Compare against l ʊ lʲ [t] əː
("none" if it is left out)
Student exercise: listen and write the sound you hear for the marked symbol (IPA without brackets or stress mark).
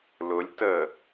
t